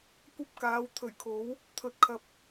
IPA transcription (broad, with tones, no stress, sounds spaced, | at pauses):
kʷ ɐ˥ p̚ k aː˨˧ w t̪ʰ ɵ˨˩ ɥ kʰ o˨˥ w | t̪ʰ ɵ˨˥ t̚ kʰ ɐ˧ p̚